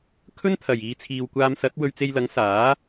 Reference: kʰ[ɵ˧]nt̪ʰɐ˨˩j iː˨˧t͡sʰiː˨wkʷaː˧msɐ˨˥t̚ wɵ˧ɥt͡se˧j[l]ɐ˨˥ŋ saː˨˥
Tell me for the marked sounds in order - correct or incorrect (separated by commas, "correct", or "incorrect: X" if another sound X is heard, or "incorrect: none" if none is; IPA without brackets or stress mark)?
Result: incorrect: ɵ˥, correct